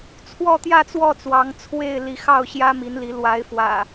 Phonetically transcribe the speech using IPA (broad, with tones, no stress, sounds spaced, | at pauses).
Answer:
t͡sʰ w ɔ˥˨ t̪ j ä˥˨ t͡s w ɔ˥˨ t͡s w ɑ˨˦ ŋ t͡sʰ w e˥˨ ɪ̯ l i˨˦ x ɑ˥˨ ʊ̯ ɕ j ä˦ m i˨˦ n l i˨˦ l w a˨˦ ɪ̯ f w ä̰˨˩